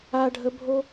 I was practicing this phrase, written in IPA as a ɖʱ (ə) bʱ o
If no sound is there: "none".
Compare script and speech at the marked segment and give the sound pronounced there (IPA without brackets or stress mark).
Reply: ə